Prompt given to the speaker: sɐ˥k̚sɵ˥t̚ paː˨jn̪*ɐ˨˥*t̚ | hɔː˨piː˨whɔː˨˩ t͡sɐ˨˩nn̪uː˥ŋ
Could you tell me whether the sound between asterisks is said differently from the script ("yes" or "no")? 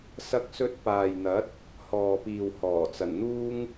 no